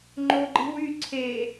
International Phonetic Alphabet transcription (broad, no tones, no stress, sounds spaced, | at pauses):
ŋ͡ǃ o ɡ͡ǃ i̤ w y ǀʰ e